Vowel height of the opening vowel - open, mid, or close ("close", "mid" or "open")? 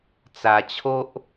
open